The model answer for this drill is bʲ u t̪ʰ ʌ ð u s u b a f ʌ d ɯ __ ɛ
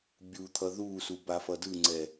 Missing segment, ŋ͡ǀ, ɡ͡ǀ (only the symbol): ŋ͡ǀ